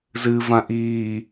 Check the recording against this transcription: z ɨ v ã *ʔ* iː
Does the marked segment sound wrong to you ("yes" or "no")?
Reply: no